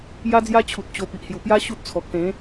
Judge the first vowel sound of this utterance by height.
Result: low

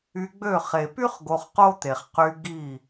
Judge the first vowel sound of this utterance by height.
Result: high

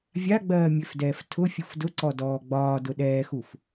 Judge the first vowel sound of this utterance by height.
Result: low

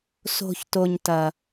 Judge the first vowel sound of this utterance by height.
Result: mid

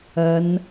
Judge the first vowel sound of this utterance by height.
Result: low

